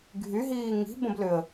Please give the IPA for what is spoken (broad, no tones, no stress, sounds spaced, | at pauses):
ɡʱ y ɦ iː ŋ i̤ b ə̃ b l ʏ ə̯